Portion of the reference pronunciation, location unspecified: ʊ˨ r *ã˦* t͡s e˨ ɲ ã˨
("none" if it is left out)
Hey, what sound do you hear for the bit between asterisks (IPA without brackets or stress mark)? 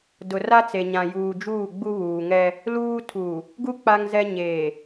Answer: a˦